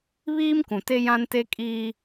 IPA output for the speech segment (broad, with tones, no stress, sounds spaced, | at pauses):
β iː˦ m k ũ˨ t e˦ j ã˦ n t e˦ kʼ iː˦